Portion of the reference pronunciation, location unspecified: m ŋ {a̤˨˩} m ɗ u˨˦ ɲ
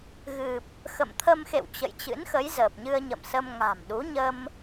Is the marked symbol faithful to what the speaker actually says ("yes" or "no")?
yes